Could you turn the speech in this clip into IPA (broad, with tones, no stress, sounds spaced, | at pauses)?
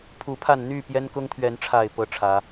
pʰ u˨˦ pʰ a˥˨ n n̪ y˥˨ p j ɛ˦ n k ʊ˦ ŋ t̪ʰ ɥ ɛ˨˦ n ʈ͡ʂʰ a˥˨ ɪ̯ p ɤ˥˨ ʈ͡ʂʰ ä˨˦